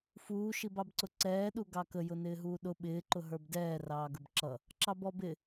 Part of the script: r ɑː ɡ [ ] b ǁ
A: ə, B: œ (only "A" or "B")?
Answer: A